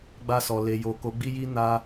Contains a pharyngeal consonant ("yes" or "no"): no